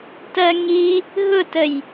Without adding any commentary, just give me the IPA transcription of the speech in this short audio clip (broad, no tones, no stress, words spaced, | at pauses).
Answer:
tɜŋi | ɦʊtəj